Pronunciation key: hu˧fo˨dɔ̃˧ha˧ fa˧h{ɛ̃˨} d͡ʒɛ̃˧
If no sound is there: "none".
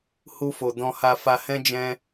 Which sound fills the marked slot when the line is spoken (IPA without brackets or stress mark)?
ɛ̃˦